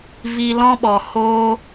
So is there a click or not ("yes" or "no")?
no